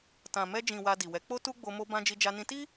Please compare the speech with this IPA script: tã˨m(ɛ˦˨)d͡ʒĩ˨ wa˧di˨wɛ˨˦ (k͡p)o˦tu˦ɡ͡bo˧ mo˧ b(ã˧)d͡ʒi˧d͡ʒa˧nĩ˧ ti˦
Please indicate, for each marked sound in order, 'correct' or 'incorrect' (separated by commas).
incorrect, correct, correct